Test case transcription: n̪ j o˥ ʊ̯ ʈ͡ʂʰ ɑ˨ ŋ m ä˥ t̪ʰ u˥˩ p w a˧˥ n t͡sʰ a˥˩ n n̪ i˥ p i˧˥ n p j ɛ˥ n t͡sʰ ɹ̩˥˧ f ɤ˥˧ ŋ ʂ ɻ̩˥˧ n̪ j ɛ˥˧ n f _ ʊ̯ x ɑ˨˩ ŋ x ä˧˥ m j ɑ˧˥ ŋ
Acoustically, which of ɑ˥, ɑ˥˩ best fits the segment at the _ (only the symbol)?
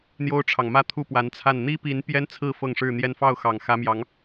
ɑ˥˩